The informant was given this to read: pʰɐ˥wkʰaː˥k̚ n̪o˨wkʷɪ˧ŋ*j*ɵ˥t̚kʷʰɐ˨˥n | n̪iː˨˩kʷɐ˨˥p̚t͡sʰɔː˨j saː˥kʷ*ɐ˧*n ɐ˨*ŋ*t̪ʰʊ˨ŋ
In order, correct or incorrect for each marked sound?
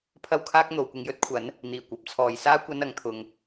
correct, correct, correct

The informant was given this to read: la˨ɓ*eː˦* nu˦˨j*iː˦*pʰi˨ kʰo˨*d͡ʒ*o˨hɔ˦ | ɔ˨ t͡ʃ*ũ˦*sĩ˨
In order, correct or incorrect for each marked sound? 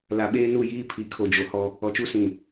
correct, correct, correct, incorrect: u˦

